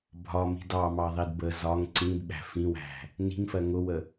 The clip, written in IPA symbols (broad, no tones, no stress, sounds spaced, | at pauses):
bʱ ɒ m i̤ d ɑ m ɑ ðˤ i d b ə z ɒ ŋ ǀ ĩ d ɓ æ̤ f ĩ w æ̤ | n i̤ ŋ f ɜ ŋ ʊ w ə